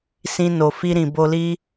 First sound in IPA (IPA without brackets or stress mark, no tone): s